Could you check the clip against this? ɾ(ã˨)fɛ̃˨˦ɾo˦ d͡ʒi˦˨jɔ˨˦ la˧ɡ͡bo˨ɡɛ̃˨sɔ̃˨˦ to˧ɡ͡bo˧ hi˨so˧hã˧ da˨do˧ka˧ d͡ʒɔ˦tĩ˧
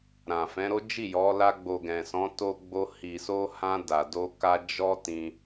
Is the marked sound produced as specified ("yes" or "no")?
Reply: yes